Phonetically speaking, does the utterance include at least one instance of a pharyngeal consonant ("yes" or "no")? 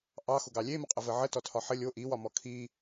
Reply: yes